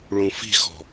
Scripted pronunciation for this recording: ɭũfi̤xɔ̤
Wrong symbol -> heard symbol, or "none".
none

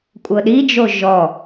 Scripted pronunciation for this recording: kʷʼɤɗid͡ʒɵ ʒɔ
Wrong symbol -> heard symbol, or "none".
ɵ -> o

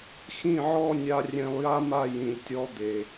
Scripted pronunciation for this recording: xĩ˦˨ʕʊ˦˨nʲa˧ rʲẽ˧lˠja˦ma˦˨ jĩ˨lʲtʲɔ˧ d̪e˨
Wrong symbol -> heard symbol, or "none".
ʊ˦˨ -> ɔ˦˨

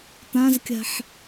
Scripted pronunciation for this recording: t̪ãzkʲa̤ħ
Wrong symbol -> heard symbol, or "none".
none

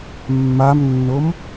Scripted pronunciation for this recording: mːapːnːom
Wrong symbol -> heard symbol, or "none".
pː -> m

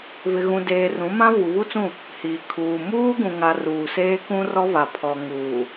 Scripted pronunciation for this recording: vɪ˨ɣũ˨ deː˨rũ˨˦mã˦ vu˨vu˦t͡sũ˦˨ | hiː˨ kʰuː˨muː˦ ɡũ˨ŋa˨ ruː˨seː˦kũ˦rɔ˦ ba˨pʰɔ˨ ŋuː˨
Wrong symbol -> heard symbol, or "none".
b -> v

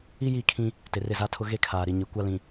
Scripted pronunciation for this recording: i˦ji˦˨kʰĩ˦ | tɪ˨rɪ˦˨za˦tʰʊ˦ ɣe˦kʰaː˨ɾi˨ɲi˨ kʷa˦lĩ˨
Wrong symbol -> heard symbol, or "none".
none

